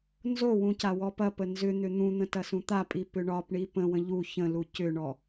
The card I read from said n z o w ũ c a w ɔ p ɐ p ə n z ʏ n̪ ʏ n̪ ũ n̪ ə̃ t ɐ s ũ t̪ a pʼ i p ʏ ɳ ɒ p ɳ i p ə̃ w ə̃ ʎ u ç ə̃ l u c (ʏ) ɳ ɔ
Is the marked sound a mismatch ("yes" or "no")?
no